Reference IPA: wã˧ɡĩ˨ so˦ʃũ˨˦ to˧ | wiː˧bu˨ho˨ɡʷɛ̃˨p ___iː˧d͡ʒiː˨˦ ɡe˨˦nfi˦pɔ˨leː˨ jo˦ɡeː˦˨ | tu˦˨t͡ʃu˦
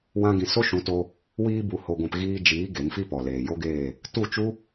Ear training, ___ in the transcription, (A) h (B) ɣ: B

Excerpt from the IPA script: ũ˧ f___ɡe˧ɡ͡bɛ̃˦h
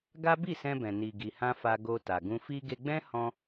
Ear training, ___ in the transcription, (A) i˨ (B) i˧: B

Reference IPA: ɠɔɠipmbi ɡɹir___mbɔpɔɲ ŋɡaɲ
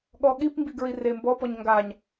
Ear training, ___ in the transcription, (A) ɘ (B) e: B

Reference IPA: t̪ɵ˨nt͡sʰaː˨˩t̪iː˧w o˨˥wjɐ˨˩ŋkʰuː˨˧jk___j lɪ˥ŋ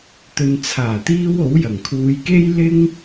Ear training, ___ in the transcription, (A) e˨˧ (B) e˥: B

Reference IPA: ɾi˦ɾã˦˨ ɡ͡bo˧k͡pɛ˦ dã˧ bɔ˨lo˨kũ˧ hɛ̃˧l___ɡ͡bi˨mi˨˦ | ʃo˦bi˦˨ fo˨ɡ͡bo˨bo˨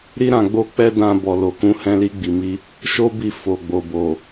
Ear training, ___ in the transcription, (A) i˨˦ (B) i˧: B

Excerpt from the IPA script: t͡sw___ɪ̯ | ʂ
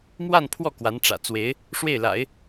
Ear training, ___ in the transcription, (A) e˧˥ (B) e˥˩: A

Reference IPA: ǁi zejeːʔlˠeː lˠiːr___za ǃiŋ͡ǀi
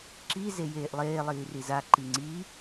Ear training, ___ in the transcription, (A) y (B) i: B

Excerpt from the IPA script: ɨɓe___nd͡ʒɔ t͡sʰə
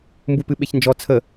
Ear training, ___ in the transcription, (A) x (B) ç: B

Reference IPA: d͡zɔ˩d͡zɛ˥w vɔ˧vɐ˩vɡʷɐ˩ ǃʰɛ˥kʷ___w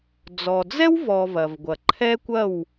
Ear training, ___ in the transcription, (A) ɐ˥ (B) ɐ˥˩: B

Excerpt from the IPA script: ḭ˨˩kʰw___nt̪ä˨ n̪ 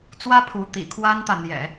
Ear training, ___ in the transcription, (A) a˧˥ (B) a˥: B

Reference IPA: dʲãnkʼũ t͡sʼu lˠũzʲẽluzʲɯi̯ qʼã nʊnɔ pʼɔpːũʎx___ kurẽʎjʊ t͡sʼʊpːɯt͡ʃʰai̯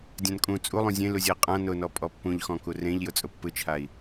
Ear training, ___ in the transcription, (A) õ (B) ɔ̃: B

